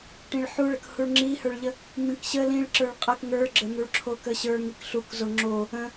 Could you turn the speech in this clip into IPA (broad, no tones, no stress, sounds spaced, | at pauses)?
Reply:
ʈ ĩ ɭ ħ u ɭ ə k h u ɭ ŋ͡ǁ i h ə˞ ɭ ʎ ə | m ĩ k ɕ ə l ĩ ɭ ǁ ə˞ ɭ qʼ ə k ŋ ə˞ ɡ͡ǁ ə n̪ u ɭ ǁʰ o k ə ɕ ə˞ ŋ i k ɬ u k z o ŋ͡ǁ o | ə̃